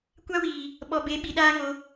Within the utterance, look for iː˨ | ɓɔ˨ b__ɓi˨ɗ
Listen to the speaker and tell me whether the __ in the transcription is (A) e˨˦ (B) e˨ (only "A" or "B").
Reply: A